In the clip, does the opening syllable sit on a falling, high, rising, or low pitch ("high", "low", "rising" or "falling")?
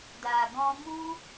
low